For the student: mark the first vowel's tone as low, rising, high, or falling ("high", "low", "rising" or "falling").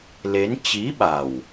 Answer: rising